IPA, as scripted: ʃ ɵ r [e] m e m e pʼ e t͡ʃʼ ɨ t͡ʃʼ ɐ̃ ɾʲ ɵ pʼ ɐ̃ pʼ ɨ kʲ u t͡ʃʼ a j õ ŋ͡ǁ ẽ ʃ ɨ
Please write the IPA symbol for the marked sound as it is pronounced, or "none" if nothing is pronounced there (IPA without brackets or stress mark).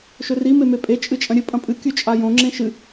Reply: i